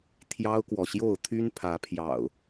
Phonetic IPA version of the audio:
t̪ʰ j ɑ˦ ʊ̯ k w ɔ˨ ɕ j o˥˨ ʊ̯ t̪ʰ y˦ n pʰ ä˨˦ pʰ j ɑ̰˨˩ ʊ̯

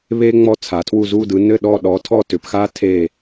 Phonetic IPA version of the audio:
β e˥ ŋ͡m ɔ˥˨ t͡sʰ a˨˦ tʰ w u˥˨ z u˥˨ d ɯ˨˦ n ɘ˥˨ ɗ ɔ˥˨ ɗ ɔ˨˦ tʰ ɔ˥˨ t ʏ˨˦ p x a˥ tʰ e˥˨

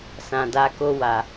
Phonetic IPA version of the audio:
s ã˨ d a˨˦ k o˧ w a˨

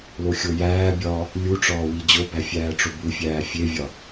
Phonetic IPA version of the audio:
l o xʲ o j æː bʲ ɒː | lʲ u ʈ͡ʂ ɒː w i d͡ʑ o b æ fʲ æː ʈ͡ʂ o b u fʲ æː fʲ e vʲ ɒ

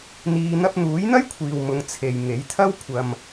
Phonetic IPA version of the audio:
n̪ iː˥ n̪ ɐ˧ p̚ n̪ uː˨˥ j n̪ ɐ˥ j kʷʰ iː˨ w m ʊ˨˧ ŋ t͡sʰ e˨ j ŋ e˨˥ j t̪ʰ ɐ˥ w kʷʰ ɐ˧ m

